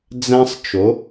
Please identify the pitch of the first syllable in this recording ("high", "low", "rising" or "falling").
high